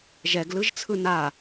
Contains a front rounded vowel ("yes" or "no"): no